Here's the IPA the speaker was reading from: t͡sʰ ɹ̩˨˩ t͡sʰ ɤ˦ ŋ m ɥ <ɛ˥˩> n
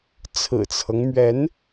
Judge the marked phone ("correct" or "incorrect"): incorrect